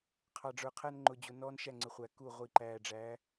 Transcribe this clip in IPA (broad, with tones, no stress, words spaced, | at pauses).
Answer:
qʰɑ˨ɖ͡ʐə˞˨qʰæ˦n ŋ͡ǃʊ˨d͡ʑʊ˨ nɔː˦nʃæ˦˨ŋ͡ǀɪ˨˦χʷæ˨ ku˦˨ʁʷi˨ ǃæː˨ɖ͡ʐæ˨˦